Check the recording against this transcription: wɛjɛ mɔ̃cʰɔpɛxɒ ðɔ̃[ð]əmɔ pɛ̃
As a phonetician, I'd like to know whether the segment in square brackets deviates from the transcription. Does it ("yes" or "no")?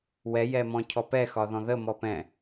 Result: no